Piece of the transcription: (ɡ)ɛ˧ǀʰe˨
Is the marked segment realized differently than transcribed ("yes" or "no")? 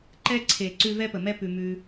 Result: yes